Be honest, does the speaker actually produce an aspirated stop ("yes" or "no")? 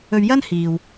no